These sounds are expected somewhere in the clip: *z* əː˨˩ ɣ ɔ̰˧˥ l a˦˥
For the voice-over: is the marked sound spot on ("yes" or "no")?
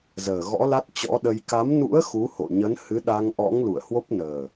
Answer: yes